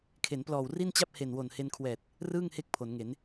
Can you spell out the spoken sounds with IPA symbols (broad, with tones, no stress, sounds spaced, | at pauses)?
kʰ e˩˦ n p l ɔː˨˩ w r i˥˩ n t͡ɕ a˥˩ p̚ h e˨˩ n w o˨˩ n h e˧ n kʰ w ɛː˨˩ t̚ | r ɯː˥˩ ŋ h e˦˥ k̚ pʰ o˩˦ n ŋ e˩˦ n